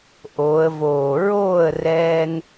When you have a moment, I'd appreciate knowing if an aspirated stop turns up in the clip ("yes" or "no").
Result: no